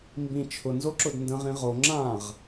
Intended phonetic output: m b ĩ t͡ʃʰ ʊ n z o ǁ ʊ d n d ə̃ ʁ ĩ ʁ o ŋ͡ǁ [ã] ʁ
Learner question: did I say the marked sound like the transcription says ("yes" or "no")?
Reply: yes